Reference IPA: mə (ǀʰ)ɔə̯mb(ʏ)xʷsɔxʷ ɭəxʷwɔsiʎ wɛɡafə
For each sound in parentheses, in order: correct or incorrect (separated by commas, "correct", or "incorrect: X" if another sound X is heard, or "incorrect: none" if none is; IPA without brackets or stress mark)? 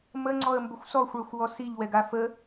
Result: incorrect: ŋ͡ǀ, correct